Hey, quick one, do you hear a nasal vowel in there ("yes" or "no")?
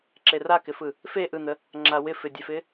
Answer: no